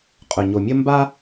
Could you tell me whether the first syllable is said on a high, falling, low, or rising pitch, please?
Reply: low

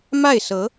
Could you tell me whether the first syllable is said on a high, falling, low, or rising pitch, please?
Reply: falling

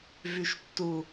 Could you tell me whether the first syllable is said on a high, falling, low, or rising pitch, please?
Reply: high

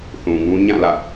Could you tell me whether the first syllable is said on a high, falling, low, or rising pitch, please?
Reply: low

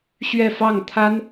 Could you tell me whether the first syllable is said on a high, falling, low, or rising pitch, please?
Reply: falling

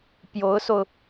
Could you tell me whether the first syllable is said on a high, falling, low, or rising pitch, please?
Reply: rising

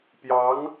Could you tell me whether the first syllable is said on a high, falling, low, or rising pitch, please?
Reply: rising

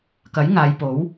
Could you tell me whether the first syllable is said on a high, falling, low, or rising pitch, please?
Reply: rising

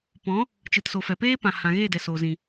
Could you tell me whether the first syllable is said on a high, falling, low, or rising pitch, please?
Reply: rising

